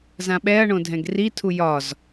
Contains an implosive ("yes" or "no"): yes